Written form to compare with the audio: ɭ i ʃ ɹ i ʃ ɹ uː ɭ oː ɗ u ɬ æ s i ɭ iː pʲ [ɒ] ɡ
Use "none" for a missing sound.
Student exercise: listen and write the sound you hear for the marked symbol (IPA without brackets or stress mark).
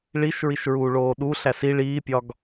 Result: ɒ